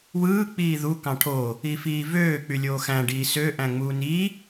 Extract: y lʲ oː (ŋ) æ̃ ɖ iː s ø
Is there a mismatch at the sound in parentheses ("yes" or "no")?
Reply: yes